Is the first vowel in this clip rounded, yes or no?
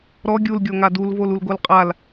yes